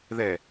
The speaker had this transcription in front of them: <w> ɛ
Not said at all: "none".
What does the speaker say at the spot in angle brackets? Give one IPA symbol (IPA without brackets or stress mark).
ð